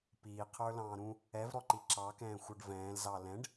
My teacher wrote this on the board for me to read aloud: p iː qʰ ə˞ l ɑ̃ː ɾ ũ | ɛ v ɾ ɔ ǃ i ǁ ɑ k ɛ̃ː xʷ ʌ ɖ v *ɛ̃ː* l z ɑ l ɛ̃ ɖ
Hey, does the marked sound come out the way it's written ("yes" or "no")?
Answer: yes